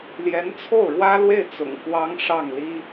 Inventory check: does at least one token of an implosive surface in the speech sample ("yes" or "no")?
no